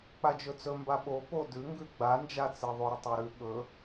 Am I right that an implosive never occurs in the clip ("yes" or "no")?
no